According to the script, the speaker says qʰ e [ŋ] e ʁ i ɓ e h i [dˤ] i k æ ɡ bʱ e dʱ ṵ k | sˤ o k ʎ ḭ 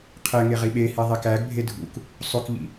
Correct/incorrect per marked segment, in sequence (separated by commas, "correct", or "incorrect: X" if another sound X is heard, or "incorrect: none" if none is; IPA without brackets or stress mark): correct, incorrect: ðˤ